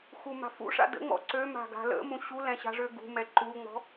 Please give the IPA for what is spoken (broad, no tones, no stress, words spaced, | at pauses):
xuma̤fṵʂa̰ də̰ŋ͡mɔ̰ ǀø ma̤ɡa̤lə̰mũ ɕulɛ̃ ɕa̤ʐøɡṳmɛ ǃuŋ͡mɔ̤